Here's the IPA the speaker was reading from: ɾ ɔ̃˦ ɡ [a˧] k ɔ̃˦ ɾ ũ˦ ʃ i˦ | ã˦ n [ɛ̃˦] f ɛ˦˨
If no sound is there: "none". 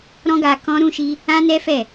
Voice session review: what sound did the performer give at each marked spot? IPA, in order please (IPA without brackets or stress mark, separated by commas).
a˧, ɛ˦